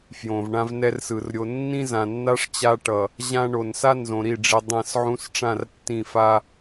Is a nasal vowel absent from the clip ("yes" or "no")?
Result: no